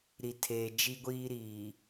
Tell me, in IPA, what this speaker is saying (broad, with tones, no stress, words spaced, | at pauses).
ɾi˨tʰeː˨ d͡ʒi˦ɡʷiː˦ɾiː˨